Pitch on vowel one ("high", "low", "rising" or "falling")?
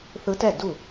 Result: rising